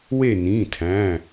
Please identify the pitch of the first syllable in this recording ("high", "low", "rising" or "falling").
falling